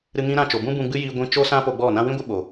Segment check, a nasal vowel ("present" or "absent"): present